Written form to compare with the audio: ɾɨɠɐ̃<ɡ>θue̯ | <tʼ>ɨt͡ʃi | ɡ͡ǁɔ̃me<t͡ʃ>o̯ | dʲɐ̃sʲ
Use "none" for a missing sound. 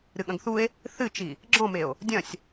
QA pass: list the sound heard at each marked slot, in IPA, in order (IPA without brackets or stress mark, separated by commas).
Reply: ɡ, θ, none